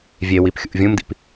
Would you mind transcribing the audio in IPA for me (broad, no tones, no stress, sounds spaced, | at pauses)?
vʲ e w i p xʲ ṵ ʔ vʲ ũ m d ḭ p